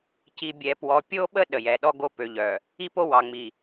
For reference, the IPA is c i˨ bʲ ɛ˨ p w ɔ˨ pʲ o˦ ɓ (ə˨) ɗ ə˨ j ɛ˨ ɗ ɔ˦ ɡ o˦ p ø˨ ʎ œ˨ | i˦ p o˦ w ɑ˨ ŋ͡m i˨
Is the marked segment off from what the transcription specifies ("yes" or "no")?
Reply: yes